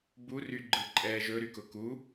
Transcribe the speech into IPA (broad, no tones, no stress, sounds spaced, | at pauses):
b u r y ɡ͡ǃ ɯ ǃʼ ɛː ʒ ɵ ɾ y k ʊ k u